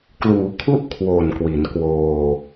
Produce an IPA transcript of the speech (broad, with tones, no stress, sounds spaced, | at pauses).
k l uː˩˦ kʰ u˦˥ ʔ kʰ w o˨˩ n k w i˩˦ n k w oː˧